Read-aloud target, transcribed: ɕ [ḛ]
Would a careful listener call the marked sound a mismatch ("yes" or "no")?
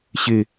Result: yes